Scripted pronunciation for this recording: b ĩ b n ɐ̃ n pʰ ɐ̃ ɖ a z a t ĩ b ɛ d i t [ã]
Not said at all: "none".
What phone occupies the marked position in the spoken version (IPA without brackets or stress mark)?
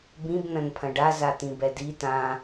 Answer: ã